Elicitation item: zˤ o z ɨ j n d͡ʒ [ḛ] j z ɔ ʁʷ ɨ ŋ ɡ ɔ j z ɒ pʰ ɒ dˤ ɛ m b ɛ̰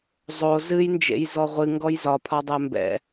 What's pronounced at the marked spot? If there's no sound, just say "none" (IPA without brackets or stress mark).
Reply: ḛ